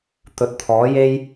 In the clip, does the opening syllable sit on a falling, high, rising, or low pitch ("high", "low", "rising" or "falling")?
low